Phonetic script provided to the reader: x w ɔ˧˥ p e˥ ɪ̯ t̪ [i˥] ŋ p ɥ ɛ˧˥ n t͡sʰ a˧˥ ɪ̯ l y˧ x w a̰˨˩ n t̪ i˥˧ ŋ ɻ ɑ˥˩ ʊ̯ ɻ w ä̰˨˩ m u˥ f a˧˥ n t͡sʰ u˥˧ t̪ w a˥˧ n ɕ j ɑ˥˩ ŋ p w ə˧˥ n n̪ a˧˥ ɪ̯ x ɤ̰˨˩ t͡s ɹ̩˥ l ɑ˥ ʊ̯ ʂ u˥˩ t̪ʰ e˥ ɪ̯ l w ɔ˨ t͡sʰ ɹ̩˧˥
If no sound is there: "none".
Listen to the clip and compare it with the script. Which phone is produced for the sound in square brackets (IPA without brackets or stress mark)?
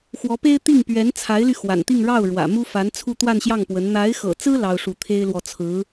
i˥˩